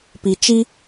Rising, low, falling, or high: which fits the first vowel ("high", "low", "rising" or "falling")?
low